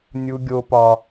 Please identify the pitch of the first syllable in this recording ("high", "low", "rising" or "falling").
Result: high